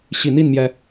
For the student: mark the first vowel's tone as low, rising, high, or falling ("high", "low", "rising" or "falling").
low